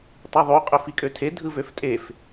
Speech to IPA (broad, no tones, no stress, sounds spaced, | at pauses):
tˤ ɯ ðˤ u qʼ ø f i kʼ ø tʰ e dʱ ɯ v ø f tʼ e f